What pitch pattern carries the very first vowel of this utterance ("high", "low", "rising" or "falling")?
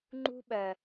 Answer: high